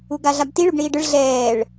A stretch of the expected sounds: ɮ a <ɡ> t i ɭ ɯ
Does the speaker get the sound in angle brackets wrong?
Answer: yes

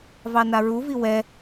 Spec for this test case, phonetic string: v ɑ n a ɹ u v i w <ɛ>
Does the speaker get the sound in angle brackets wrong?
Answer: no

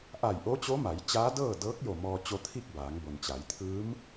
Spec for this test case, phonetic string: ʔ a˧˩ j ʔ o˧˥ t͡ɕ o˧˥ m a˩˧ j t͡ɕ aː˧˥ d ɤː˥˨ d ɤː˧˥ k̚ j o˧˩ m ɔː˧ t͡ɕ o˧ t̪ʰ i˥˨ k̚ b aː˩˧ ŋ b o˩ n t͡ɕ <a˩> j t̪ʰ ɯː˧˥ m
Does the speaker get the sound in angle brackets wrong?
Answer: yes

